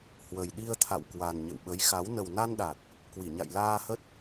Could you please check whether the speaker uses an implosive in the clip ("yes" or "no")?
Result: yes